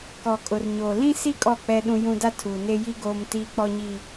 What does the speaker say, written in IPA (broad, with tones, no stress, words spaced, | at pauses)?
kɔ˨kʼʊ˨rɲoː˨ lĩ˦si˦ kʼɔ˦˨k͡pɛ˦ɗũ˦jũ˦ da˦tʰuː˨ne˦ji˦ ɡoː˦m tiː˦k͡pɔ˦ɲi˦